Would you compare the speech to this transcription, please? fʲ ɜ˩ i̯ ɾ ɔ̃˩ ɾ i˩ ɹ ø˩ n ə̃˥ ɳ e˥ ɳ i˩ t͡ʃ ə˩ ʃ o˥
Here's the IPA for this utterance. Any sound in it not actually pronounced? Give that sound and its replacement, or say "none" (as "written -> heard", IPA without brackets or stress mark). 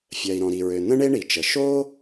none